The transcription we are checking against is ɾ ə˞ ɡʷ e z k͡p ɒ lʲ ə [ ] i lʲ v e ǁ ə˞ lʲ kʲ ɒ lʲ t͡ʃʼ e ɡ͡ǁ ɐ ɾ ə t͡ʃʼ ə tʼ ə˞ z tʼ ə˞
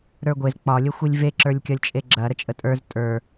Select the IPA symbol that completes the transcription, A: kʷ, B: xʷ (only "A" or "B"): B